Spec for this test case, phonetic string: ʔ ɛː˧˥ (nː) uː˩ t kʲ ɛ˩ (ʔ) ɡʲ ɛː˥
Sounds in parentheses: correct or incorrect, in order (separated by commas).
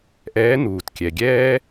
incorrect, incorrect